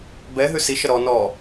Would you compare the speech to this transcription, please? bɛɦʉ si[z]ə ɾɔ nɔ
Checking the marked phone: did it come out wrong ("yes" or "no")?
yes